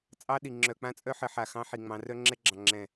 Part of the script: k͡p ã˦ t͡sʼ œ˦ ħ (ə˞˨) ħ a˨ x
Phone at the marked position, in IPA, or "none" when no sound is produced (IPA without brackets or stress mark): ə˨